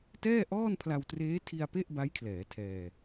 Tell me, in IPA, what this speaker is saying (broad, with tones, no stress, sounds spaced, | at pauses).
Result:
t ɛː˥˩ ʔ ɔː˥˩ n pʰ l a˧ w t r eː˦˥ tʰ i˧ a̯ p e˥˩ ʔ b a˦˥ j kʰ l ɛː˩˦ tʰ ɛː˧